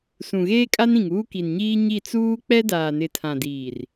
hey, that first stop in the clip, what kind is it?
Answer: ejective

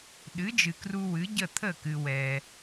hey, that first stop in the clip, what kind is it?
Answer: implosive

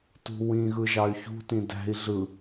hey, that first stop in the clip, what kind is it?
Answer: plain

